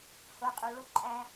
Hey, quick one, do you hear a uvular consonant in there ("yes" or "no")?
yes